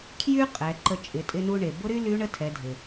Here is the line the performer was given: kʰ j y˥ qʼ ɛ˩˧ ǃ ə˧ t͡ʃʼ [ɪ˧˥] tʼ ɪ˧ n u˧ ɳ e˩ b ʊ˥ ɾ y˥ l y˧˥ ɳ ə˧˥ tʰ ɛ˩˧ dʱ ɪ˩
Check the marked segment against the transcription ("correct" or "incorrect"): incorrect